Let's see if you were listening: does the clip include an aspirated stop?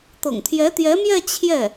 yes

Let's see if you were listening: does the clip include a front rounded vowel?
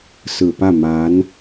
no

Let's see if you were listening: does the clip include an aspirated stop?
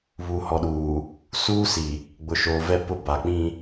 no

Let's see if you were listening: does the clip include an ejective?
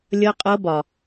yes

